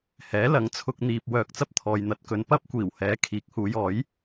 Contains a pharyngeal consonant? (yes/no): no